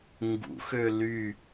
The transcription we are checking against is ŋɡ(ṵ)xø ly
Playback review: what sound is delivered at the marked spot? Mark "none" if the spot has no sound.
ṵ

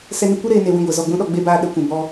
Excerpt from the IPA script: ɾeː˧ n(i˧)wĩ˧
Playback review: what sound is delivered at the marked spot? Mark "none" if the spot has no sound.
e˧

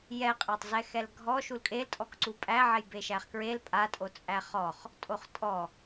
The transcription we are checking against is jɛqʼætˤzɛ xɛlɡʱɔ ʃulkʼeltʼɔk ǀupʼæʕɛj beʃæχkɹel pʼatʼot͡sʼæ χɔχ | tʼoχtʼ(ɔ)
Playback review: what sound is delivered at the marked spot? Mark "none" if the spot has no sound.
ɔ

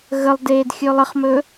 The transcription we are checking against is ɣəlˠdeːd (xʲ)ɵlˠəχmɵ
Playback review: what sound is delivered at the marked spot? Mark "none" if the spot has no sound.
xʲ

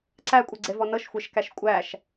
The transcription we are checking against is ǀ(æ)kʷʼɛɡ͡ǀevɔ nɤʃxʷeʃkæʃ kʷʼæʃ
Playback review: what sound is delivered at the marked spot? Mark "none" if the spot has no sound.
æ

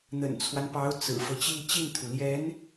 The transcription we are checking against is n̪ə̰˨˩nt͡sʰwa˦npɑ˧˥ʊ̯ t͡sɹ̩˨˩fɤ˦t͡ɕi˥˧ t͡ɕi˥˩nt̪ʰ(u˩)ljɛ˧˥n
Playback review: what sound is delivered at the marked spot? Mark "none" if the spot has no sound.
u˩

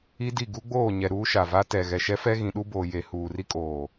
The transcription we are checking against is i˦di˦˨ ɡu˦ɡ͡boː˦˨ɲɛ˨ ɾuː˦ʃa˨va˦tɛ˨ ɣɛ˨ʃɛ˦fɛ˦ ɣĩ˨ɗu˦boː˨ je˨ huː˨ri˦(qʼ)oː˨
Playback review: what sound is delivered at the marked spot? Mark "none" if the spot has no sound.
kʼ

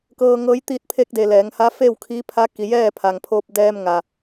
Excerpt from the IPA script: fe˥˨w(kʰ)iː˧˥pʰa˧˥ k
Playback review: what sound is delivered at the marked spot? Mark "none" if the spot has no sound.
kʰ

